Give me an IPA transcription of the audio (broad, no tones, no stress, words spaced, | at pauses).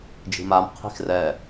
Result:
d͡ʒi̤mam qʰi̤xrɛ